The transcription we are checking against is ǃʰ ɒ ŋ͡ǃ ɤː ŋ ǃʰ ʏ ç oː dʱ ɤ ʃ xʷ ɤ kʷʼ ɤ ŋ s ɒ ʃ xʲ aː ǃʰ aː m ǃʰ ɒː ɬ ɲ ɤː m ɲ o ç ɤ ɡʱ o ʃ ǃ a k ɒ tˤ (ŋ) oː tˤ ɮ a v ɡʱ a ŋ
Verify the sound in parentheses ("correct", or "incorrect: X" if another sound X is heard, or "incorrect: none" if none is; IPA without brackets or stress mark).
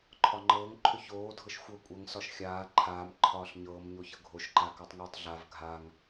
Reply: correct